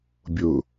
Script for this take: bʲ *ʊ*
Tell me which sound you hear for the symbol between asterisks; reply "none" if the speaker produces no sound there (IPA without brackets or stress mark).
ʊ